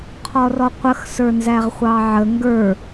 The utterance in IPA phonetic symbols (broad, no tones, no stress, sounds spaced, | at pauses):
qʰ ɔ r ɔ qʷ ə x s ə˞ n z æ ʁ χʷ ɑ ʕ ə ŋ ɡ ə˞